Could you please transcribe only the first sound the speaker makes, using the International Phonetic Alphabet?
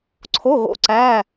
ǀʰ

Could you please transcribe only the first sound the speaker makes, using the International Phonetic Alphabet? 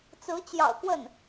t͡s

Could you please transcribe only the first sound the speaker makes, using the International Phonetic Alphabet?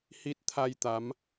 h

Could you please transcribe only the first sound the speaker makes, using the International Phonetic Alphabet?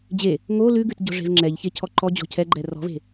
d͡ʑ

